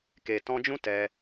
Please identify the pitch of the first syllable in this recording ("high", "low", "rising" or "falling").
low